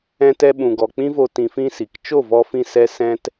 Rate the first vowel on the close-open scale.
mid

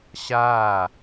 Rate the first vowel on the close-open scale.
open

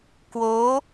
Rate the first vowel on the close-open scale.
mid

